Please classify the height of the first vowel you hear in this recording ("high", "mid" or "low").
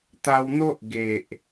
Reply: low